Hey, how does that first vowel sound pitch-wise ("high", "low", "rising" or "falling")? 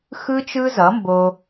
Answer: high